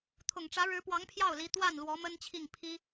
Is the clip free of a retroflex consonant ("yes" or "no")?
no